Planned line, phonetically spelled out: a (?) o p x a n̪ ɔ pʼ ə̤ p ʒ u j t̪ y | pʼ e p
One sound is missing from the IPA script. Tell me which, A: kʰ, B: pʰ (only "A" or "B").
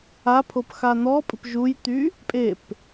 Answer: B